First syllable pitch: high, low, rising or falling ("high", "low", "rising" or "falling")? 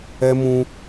high